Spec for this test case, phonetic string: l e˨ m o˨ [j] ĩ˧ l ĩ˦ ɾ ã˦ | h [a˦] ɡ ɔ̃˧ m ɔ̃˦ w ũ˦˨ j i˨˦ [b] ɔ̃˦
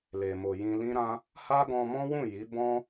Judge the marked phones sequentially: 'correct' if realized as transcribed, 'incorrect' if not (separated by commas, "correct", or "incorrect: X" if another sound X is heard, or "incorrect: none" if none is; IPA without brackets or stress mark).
correct, correct, correct